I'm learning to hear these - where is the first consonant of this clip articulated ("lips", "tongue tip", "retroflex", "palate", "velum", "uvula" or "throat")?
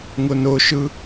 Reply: velum